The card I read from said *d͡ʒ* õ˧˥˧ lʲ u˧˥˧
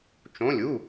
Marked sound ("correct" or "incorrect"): incorrect